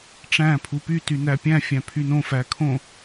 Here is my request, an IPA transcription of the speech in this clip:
ʈ͡ʂ æ̃ pʰ u p y t y n æ pʲ æ̃ fʲ æ̃ pʰ y n õ f æ kʰ õ

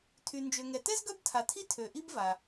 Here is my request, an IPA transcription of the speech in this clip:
tʰ y˨ n d͡ʒ ø˨ ŋ ɛ˨ t ɛ˥ z ɡ œ˥ b tʰ a˨ tʰ i˥ tʰ ø˨ ʔ i˥ b v a˨

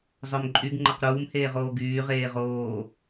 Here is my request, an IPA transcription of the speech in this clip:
zˤ œ m ǃʼ y ɡ ŋ͡ǃ ə q ɾ uː m h eː ʁ oː ɡ yː ʁ eː ʁ oː

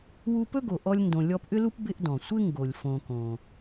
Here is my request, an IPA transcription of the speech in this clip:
w u˦ p ɵ˥ ɡ o˨ ʔ ɔ˦ lʲ n d õ˨ lʲ ɔ˦ p ʔ ʏ˥ l u˥ p b ɪ˥ ʔ d ɔ̃˩ sʷ ɪ˥ ŋ ɡ o˩ lʲ f õ˨ k õ˩

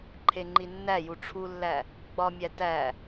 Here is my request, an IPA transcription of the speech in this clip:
ǃʰ e ŋ͡ǃ i nː æ j u ʈ͡ʂʰ u lː æ | ɡ͡b ɒ mʲ æ t æ

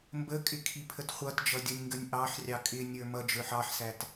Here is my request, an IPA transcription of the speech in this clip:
m b ə kʼ ɪ kʰ i pʰ ə t χʷ ʌ t d͡ʒ ʌ dʲ ʌ nʲ ŋ ɡ ə nʲ ʔ ɑ ħ rʲ ɑ kʼ ɪ nʲ ə˞ m ʌ d͡ʒ ə˞ ħ ɑ ħ s æ t

